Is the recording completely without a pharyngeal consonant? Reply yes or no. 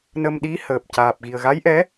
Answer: yes